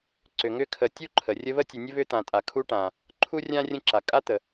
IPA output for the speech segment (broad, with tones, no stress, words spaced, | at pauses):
ǀʏ˨ ŋʏ˦kʰə˨tʲu˥ǃʰə˩ rʲə˦βə˥tʲə˨nʲə˥ βʏ˥t̪ã˨ tʼa˩kʰu˦ʈã˩ | ǃʰu˥rʲã˥rʲə̃˦ ǁa˩kʼa˥t̪ə˩